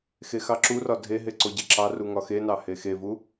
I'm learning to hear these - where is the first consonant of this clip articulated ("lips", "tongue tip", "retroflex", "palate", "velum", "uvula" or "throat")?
velum